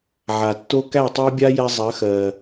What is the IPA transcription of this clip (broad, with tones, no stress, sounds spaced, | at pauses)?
ʕ a˨ tː o˦ k æ˦˨ tˤ æ˦ bʲ a˦ j ɛ˧ zˤ ɜ˨˦ x ɜ˨